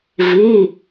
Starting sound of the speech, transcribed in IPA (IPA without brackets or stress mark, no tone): v